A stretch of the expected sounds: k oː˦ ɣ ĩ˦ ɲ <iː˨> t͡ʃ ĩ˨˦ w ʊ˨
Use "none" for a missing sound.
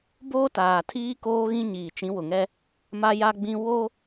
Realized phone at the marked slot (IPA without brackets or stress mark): iː˨